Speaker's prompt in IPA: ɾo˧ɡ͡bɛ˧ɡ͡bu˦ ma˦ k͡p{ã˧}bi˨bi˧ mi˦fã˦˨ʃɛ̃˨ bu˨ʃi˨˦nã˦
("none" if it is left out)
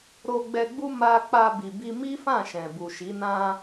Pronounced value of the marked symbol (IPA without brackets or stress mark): a˧